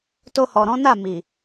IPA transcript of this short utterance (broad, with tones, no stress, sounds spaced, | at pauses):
t o˧ h ɔ˨ ɾ ɔ̃˨˦ n a˦˨ m i˨